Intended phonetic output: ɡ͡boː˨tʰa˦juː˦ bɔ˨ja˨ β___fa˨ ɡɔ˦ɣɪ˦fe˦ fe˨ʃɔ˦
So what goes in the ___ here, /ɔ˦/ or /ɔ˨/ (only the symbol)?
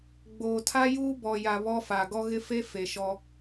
ɔ˦